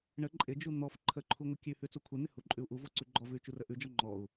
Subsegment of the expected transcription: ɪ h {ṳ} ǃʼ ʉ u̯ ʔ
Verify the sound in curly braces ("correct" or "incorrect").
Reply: incorrect